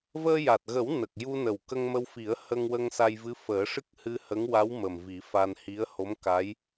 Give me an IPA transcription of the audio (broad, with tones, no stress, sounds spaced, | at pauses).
v əː˧ j a˨˩ t̚ ɣ ə˨˩˦ w n ə˨˩ k̚ j u˧ n ə˨˩ w k ə˧ ŋ m ə˧ w f i˨˩˦ ə̯ h ə˧ ŋ w ə˧ ŋ s a˧ j v ɨ˧˥ f əː˨˩˦ ʂ ɨ˦˥ k̚ h ɨ˧ h ə˧˥ ŋ w a˧˥ w m ə˨˩ m v i˨˩˦ f a˧ n h i˧˥ ə̯ h o˧˥ m k a˧˥ j